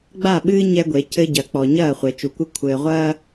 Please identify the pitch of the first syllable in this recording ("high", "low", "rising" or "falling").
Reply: falling